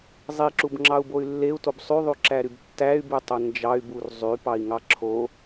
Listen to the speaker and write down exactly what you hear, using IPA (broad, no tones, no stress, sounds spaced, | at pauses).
zˤ i ǁ u b ŋ͡ǁ ɑ u̯ b o y̯ lː e u̯ t o b sˤ y ðˤ y ǁ æ ɾ y b tː æ y̯ b y tˤ o n d͡ʒ ɑ y̯ b u r zˤ y p ɑ i̯ ŋ ɑ ǁʰ o